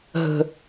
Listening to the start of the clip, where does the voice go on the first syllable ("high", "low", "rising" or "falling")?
high